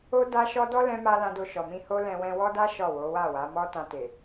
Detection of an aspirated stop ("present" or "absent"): absent